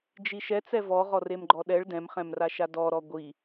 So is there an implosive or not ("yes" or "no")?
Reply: yes